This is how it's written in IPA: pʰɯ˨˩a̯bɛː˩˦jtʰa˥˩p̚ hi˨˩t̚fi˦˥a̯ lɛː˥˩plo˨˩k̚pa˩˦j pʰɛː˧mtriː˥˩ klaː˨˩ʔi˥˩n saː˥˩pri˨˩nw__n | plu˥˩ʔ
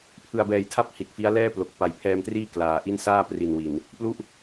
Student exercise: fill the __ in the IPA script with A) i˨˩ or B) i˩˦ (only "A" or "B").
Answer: A